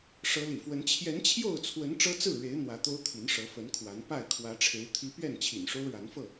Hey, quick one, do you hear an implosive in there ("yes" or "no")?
no